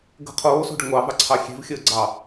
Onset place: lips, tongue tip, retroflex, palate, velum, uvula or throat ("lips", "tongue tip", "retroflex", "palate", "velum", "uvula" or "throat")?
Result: velum